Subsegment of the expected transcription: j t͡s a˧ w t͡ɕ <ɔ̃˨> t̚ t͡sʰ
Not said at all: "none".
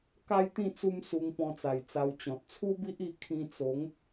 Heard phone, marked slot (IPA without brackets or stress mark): ɔ̃˨